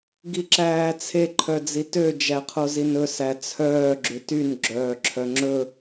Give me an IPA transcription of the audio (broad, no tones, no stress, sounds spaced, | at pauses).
ɡ i ǁ æː t͡sʰ e ǃʰ œ d͡z i t ø d͡ʒ æ qʰ o z i n ɵ s æ t͡sʰ œː ɡ͡ǁ ʉ t y n ɡ͡ǁ œː ǁʰ œ ŋ͡ǁ ɵ